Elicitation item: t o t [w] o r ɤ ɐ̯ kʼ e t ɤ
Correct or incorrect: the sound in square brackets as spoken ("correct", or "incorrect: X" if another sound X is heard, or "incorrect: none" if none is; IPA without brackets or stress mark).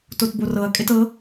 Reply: incorrect: b